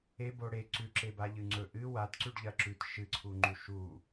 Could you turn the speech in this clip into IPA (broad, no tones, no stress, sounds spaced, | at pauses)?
e b o ɽ e ǀ ʉ ǁ e b a ʎ ɨ ŋ͡ǀ ɵ ʔ ɨ w a t ǀ ʉ ɖ ʎ ɐ ǁ ʉ t ʃ ɨ ǀʰ u ŋ͡ǃ u ʃ u